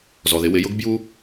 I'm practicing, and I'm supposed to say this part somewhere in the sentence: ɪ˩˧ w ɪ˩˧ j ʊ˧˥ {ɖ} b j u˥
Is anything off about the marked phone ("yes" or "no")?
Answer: yes